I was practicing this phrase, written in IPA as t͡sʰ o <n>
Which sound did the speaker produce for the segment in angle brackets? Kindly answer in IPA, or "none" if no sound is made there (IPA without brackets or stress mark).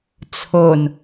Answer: n